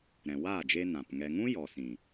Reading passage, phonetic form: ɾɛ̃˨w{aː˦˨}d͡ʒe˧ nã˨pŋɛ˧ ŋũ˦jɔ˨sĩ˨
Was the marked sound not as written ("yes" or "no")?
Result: no